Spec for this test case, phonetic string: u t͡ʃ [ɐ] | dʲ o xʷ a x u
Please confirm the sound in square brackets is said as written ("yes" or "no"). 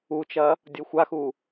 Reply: yes